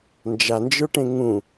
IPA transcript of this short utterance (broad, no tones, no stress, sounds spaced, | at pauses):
n d͡ʒ a n d͡ʒ ə˞ ʈ ẽ ŋ ũ